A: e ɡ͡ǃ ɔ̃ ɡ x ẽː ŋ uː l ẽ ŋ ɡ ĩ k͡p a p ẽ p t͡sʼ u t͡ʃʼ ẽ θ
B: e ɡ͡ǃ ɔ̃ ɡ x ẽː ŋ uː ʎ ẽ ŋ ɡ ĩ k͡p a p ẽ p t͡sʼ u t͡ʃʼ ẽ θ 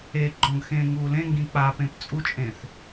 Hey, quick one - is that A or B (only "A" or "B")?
A